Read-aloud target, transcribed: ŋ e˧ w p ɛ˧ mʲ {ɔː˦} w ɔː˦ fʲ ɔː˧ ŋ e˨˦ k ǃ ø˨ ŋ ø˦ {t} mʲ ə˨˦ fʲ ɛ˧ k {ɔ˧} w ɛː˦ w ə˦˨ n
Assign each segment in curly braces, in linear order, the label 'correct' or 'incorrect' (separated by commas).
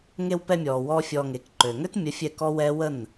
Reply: incorrect, correct, incorrect